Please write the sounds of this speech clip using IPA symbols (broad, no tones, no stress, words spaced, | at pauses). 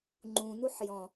ŋ͡ǃũnuħ jɔ̃